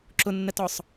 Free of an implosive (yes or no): yes